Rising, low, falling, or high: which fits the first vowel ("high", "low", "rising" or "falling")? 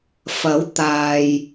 rising